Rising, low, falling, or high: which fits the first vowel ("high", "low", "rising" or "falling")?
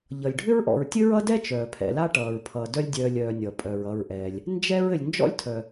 low